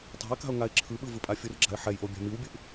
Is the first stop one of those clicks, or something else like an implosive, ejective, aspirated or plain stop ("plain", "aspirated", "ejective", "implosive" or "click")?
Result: plain